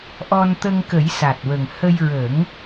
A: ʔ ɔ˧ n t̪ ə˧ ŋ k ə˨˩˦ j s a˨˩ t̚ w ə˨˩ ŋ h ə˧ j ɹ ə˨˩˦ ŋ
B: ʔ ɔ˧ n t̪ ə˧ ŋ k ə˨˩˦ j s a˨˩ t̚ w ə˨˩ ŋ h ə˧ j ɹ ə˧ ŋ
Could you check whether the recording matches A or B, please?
A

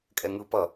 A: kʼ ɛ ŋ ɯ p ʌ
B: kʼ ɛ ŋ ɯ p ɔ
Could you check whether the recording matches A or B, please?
A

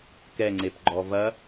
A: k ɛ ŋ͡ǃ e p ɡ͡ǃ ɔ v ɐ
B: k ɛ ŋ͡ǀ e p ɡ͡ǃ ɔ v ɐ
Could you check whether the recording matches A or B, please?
B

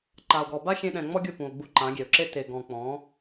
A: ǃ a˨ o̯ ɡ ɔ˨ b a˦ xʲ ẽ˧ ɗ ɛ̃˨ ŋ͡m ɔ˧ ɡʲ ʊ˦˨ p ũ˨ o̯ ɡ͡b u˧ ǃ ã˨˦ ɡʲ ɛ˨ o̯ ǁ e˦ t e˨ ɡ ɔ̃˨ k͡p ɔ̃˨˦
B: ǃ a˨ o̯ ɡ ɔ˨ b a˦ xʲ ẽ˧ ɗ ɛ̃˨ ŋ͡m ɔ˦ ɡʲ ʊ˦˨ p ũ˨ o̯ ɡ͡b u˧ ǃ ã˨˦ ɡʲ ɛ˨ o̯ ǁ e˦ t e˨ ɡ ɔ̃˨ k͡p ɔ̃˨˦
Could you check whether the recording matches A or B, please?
B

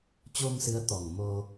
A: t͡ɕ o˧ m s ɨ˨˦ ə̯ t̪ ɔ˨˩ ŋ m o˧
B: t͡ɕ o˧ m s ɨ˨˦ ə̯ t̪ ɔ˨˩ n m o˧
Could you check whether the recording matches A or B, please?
A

